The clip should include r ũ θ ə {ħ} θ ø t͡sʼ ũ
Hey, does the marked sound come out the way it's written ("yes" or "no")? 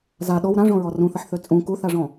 yes